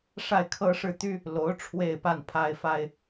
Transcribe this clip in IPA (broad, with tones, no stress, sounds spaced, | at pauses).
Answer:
ʂ a˥˩ ɪ̯ kʰ ɤ˥ ʂ ɻ̩˥˩ t̪ y˥ | l o˧˥ ʊ̯ ʈ͡ʂʰ w e˥˧ ɪ̯ p a˥˩ n pʰ a˥ ɪ̯ f a˥ ɪ̯